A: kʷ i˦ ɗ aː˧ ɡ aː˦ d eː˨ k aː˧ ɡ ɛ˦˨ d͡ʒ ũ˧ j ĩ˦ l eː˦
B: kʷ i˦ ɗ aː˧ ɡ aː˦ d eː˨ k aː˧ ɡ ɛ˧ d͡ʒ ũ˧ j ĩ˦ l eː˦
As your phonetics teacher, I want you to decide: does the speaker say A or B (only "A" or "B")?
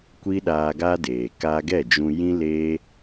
A